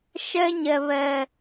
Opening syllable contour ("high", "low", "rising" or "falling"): high